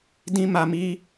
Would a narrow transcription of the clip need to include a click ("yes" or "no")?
no